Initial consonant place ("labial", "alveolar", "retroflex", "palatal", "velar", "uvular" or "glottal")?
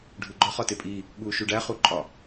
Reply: retroflex